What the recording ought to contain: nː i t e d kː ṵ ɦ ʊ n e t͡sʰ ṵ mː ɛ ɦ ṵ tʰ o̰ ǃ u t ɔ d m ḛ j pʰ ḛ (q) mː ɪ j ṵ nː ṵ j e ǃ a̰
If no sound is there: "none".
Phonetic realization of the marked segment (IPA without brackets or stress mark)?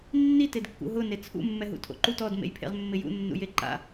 ʁ